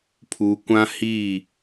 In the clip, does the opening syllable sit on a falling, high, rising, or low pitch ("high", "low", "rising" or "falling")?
low